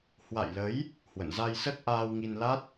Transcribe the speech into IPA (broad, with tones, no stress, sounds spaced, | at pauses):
h w a̰˧˨ j l ə˨˦ j | h w ə̰˧˨ n z a˧ j s ə˦˥ t̚ ʔ aː˧ w ŋ i˧ n l a˦˥ t̚